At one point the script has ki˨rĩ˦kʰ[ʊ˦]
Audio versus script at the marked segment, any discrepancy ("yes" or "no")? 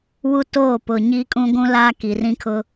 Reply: no